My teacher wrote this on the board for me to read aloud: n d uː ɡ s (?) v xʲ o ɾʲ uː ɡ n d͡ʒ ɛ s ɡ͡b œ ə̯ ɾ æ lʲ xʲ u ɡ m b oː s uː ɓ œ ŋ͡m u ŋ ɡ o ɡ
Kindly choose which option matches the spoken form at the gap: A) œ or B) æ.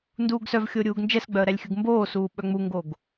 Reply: A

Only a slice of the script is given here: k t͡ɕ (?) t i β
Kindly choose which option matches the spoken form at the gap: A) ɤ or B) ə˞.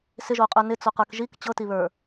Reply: A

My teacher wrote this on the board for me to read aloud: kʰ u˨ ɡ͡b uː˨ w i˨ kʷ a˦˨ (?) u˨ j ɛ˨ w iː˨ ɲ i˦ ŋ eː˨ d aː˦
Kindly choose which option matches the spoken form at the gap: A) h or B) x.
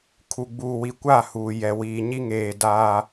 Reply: A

